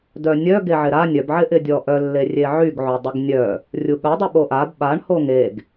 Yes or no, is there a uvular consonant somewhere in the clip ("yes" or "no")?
no